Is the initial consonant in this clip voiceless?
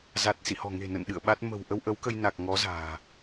no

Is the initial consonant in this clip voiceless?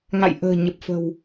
no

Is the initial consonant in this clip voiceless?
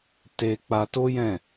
yes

